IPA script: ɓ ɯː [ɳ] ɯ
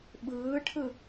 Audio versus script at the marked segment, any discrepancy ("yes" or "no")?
yes